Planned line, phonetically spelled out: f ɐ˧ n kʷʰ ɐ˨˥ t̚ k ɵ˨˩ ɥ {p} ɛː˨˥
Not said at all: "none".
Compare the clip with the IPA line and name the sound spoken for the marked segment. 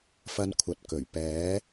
p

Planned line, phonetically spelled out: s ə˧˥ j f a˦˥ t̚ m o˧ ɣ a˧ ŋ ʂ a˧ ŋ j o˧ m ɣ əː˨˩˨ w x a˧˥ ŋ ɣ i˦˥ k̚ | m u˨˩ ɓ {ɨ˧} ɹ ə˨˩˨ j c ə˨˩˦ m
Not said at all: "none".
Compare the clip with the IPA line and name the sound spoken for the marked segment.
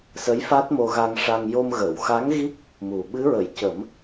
ɨ˧˥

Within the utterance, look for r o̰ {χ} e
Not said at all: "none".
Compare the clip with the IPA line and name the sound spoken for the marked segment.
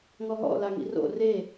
r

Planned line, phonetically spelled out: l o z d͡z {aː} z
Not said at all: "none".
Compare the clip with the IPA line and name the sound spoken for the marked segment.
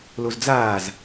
aː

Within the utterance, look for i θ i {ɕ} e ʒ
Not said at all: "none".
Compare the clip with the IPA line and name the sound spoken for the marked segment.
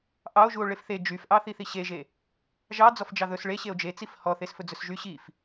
ɕ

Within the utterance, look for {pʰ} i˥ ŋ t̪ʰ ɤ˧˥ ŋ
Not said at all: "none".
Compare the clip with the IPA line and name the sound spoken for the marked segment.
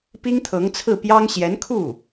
p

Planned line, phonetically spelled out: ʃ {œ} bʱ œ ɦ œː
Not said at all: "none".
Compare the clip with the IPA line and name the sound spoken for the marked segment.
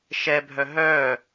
ɛ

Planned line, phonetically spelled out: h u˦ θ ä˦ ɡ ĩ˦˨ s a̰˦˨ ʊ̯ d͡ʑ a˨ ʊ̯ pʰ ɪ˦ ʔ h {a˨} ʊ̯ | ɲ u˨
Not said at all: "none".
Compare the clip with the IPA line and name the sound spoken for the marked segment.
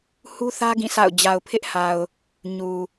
a˨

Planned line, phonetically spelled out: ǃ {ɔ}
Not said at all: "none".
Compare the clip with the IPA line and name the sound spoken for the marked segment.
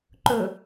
ɵ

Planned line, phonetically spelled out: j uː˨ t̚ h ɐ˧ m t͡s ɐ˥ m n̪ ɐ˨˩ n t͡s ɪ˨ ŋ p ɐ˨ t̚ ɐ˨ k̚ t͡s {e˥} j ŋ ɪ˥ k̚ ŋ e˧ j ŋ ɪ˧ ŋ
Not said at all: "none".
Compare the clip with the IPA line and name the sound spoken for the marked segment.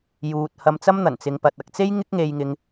e˥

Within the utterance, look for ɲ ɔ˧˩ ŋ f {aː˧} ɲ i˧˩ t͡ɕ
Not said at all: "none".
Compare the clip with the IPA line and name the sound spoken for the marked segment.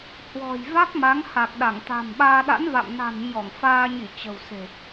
aː˧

